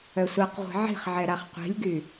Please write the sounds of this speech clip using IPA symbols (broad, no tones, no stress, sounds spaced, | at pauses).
œ sʷ a q ʁʷ i̤ ʕ i̤ χ ʕ ɛ ɾ a χ qʷ i̤ lʲ ɡ y